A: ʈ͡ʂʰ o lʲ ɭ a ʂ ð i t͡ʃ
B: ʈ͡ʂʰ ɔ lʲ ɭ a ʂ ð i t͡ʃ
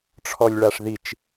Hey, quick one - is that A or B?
B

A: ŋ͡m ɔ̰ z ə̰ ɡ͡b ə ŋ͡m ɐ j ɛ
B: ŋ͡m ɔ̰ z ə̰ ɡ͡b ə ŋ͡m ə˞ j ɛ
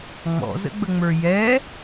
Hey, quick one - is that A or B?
B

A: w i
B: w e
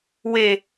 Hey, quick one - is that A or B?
B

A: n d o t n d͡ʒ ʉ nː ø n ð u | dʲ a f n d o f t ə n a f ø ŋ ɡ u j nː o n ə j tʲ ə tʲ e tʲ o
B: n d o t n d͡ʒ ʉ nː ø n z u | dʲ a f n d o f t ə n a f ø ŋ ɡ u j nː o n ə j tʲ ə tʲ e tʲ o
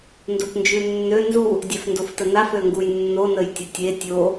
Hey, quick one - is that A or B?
B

